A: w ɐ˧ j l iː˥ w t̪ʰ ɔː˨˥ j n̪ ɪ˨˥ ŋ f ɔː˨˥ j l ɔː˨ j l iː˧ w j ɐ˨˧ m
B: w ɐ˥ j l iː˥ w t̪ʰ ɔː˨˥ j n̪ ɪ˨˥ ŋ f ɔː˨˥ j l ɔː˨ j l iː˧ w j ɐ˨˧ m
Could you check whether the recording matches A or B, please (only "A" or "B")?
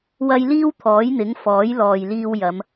B